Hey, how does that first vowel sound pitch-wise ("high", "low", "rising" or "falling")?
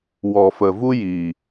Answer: low